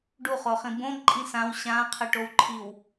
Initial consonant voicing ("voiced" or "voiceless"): voiced